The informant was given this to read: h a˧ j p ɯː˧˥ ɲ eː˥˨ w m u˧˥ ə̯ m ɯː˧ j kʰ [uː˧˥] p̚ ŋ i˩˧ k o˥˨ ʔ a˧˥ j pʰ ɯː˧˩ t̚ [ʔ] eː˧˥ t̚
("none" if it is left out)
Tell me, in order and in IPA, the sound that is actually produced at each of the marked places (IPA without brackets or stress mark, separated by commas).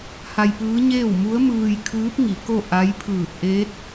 ɯː˧˥, ʔ